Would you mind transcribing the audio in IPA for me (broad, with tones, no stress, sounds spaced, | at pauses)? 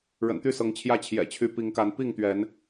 ɻ ə̰˨˩ n t̪ y˥˨ s ɤ˨˦ ŋ t͡ɕʰ j ä˥˨ t͡ɕʰ j ɛ̰˨˩ t͡ɕʰ y˨˦ p i˨˦ ŋ k a˨˦ n p i˥˨ ŋ t̪ ɥ ɛ˨˦ n